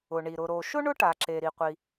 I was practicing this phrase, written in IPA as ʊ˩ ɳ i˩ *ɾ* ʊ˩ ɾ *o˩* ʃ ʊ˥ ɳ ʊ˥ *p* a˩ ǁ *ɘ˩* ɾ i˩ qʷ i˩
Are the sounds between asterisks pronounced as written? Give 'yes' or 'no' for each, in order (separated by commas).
yes, yes, no, no